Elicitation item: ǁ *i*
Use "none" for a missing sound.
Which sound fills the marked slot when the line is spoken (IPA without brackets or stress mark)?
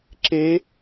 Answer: e